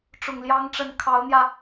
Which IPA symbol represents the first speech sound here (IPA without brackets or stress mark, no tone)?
ʈ͡ʂ